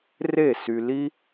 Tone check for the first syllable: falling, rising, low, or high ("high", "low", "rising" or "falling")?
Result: falling